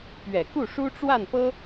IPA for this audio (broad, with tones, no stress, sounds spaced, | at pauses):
p ɥ ɛ˨˩ k u˥˩ ʂ u˥ ʈ͡ʂ w a˥˩ n p ɤ˥